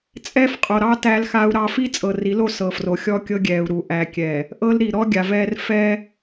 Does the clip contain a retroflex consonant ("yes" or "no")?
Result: no